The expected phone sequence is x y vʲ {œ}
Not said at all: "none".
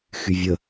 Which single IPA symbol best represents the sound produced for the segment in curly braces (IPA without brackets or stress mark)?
ə